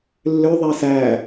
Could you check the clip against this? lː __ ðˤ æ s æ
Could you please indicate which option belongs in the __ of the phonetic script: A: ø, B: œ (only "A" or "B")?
A